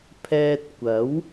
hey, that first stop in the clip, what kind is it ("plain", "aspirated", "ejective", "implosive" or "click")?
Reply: aspirated